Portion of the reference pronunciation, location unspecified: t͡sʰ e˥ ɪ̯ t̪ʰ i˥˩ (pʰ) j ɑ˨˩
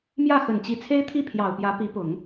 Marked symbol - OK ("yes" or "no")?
yes